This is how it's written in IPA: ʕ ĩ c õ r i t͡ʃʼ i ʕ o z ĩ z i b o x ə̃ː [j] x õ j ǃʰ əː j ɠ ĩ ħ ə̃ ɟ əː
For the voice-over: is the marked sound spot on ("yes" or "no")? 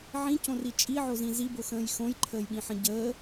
yes